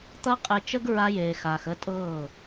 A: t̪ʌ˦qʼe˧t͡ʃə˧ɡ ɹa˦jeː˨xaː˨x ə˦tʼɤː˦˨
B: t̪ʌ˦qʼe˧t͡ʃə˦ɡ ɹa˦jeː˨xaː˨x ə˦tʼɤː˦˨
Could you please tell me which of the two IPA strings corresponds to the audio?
B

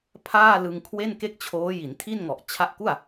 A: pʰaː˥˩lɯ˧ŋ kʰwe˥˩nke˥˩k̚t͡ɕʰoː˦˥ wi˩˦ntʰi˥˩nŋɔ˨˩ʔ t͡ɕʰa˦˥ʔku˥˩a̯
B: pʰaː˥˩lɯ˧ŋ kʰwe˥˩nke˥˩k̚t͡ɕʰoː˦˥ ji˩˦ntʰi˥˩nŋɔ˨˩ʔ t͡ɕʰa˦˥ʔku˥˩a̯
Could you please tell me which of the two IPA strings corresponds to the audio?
B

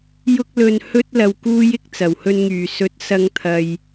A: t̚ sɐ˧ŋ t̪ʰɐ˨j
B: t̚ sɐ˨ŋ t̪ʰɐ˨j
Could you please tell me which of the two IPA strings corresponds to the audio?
A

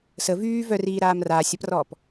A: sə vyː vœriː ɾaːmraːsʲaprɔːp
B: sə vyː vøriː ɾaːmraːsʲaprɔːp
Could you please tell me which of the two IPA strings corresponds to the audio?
A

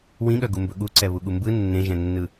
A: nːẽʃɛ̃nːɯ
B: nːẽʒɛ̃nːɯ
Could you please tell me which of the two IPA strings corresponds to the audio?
B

